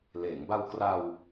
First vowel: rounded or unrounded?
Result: unrounded